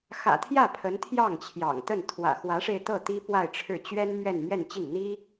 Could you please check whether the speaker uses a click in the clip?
no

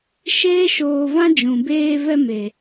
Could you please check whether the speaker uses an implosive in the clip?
no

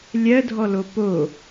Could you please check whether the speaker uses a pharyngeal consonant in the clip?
no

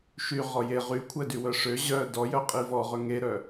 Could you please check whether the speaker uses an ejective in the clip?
yes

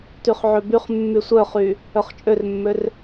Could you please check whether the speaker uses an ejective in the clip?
yes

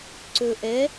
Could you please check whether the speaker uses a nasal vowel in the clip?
no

